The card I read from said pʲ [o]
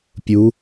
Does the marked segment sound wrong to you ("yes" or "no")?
yes